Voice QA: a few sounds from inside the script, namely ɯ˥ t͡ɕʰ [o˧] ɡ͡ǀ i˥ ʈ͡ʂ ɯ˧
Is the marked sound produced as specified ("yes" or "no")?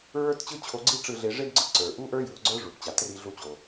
yes